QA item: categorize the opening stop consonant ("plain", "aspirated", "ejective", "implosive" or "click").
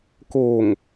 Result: plain